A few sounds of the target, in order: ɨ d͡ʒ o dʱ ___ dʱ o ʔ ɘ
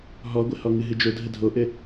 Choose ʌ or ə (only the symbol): ə